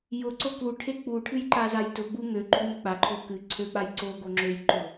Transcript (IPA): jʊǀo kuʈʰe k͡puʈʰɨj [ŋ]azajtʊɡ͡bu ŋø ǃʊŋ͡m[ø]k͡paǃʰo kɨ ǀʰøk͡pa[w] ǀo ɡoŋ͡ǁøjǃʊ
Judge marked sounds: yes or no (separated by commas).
no, yes, no